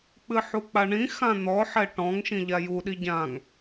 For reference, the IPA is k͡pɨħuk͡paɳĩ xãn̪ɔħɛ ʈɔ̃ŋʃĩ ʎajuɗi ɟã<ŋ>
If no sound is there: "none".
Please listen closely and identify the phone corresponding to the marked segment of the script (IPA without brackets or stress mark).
ŋ